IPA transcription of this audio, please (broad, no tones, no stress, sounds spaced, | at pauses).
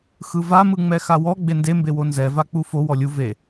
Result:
x ɯ v a m ɯ ŋ͡m ɛ x a w ɔ ɡ͡b e n d e m b e w o n z ɛ v a k͡p u f o w ɔ lʲ u v e